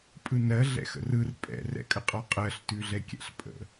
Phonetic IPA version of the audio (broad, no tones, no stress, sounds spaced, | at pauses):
pʼ ɯ n ɜ ɮ ɛ̰ x ə̰ r ɯ r pʼ ɛ̰ r ɛ̰ kʼ ə qʼ ɔ qʼ ɜ ɬ t ʉ ɮ ɛ kʲ ɛ̰ ɬ pʼ ə̰